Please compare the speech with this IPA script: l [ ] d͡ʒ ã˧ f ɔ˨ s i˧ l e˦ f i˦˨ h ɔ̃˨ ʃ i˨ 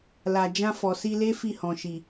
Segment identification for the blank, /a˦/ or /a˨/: a˨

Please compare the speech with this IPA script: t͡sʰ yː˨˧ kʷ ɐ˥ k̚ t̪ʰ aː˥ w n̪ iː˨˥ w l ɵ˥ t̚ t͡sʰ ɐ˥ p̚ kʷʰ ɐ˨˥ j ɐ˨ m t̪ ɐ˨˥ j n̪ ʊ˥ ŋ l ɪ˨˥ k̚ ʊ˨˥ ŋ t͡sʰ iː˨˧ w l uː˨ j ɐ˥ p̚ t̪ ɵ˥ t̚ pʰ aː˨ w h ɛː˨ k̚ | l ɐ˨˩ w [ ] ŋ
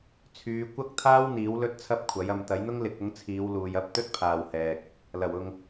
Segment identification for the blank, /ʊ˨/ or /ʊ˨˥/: ʊ˨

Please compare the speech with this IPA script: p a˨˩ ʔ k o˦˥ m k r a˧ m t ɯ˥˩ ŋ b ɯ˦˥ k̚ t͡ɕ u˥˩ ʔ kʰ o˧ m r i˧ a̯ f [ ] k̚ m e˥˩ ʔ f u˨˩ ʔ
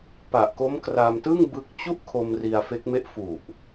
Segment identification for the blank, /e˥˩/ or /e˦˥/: e˦˥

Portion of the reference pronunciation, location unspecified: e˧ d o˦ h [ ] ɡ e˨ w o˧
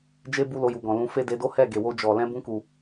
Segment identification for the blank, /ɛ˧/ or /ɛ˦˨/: ɛ˦˨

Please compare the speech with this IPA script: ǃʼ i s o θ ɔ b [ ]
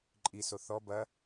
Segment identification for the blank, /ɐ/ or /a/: ɐ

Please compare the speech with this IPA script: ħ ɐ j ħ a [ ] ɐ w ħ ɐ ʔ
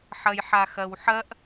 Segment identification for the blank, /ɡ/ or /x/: x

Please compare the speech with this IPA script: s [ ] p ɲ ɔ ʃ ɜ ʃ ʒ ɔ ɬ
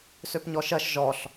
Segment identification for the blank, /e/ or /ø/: ø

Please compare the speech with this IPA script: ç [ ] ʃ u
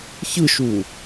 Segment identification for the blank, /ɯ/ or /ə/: ɯ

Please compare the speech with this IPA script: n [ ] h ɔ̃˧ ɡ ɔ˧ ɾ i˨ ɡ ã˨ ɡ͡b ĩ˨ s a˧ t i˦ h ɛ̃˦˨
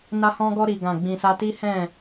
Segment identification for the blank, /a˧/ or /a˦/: a˧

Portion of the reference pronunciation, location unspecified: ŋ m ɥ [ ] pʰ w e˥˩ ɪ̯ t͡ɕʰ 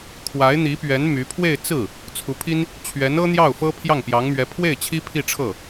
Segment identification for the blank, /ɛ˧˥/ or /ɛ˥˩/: ɛ˧˥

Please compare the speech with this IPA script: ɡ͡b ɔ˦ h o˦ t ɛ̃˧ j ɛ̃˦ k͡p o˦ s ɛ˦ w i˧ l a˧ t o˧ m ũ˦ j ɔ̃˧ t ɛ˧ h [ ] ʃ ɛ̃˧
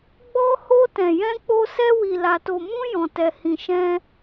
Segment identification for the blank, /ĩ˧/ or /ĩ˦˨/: ĩ˧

